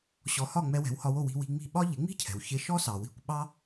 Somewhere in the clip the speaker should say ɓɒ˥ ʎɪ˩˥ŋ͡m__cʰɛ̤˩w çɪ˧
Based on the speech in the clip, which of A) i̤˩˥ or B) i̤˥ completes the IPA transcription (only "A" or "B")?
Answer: B